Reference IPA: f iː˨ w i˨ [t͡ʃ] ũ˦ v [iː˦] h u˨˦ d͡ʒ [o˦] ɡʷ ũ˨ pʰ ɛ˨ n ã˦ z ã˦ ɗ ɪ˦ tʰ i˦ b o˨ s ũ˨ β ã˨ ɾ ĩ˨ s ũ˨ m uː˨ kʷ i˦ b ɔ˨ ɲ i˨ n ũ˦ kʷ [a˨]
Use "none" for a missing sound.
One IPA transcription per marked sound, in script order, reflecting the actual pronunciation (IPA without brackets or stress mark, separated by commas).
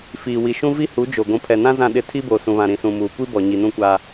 ʃ, i˦, o˨, a˦